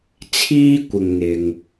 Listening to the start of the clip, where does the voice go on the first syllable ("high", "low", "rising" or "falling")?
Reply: high